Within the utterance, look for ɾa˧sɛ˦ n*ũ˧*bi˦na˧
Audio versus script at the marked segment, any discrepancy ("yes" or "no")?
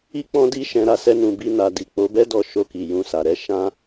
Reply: no